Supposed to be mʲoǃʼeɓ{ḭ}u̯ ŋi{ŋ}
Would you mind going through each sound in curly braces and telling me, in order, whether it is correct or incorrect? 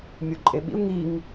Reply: correct, correct

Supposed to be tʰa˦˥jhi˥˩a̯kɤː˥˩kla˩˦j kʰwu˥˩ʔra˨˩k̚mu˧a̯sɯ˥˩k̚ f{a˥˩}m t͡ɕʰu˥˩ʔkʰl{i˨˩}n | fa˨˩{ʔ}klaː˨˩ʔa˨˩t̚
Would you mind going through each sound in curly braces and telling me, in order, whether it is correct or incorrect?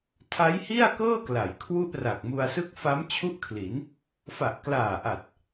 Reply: incorrect, incorrect, correct

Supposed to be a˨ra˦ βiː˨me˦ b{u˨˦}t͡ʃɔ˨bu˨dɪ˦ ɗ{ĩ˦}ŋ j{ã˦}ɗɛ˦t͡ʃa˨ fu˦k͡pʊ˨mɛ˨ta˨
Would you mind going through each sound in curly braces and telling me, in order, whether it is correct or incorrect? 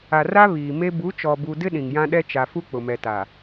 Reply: correct, incorrect, correct

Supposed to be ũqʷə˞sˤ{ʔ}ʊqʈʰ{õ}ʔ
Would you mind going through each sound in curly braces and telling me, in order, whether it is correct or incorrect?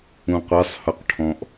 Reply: incorrect, incorrect

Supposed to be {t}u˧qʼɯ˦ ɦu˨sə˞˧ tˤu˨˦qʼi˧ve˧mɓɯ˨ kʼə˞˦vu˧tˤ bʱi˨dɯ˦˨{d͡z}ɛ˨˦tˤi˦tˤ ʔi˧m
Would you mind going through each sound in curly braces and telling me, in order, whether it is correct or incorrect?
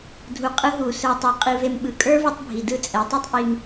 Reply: incorrect, incorrect

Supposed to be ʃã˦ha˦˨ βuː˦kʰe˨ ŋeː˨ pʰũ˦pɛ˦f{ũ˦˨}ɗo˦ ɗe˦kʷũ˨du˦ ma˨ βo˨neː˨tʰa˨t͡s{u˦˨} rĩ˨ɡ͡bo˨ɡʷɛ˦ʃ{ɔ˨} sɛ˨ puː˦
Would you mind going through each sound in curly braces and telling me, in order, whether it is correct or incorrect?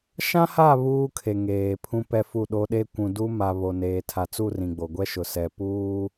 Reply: incorrect, correct, incorrect

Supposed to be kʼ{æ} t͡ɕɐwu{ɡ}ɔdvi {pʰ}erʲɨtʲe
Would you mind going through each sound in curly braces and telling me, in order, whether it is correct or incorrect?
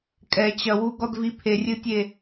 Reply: incorrect, correct, correct

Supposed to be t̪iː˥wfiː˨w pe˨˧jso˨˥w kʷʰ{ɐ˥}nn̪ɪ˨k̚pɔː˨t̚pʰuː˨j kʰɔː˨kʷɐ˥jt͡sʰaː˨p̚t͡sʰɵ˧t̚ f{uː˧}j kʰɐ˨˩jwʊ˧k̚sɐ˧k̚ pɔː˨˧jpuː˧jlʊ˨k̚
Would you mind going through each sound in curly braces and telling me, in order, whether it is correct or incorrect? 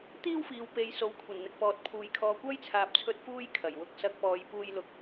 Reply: incorrect, incorrect

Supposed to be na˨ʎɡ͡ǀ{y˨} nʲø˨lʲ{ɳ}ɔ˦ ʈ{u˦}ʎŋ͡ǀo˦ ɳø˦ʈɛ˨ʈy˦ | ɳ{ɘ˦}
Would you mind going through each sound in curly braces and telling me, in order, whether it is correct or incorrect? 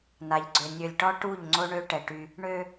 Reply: incorrect, incorrect, incorrect, incorrect

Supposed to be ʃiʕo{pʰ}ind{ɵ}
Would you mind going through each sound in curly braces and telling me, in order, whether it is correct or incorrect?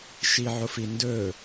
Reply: incorrect, correct

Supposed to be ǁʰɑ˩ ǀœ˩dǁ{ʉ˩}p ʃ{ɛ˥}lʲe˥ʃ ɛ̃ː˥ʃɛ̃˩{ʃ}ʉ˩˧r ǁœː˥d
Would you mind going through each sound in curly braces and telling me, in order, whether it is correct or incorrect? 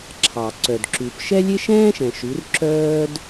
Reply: correct, correct, correct

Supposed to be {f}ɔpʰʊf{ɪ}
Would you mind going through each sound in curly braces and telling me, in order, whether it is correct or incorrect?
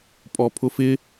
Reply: incorrect, correct

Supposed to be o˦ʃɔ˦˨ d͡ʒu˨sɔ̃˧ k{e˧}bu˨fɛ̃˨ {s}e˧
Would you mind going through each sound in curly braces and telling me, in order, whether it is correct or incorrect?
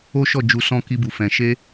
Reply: incorrect, incorrect

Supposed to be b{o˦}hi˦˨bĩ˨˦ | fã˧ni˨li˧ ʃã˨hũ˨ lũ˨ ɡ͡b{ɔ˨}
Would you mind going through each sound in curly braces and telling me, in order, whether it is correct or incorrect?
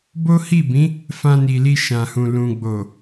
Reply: correct, incorrect

